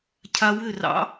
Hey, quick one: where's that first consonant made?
palate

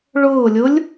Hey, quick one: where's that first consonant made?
retroflex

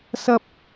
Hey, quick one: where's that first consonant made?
tongue tip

